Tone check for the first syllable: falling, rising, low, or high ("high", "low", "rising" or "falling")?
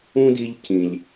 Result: high